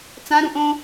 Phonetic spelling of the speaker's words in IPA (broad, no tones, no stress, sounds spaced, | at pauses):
t͡s ã ɾ ũ ʔ õ